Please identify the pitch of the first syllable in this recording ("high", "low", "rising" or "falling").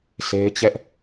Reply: high